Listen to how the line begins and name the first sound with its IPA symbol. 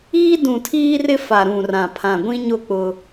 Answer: iː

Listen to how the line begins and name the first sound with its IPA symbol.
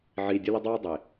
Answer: ʕ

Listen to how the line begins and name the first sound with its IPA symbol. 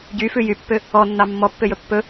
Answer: ɟ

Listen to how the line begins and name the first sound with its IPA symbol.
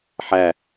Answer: ħ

